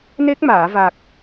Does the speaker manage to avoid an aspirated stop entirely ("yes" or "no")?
yes